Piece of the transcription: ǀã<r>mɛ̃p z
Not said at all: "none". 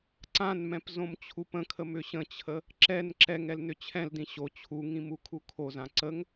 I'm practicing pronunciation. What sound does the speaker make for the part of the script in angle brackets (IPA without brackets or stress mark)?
n